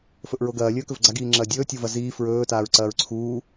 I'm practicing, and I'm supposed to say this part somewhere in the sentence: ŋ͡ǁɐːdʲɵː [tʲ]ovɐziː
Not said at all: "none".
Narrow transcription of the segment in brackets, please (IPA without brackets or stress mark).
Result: tʲ